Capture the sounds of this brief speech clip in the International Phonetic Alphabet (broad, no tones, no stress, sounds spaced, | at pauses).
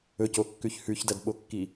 ɵ c o kː ʉ ç h ʉ ç d ɐ d ɓ o kː i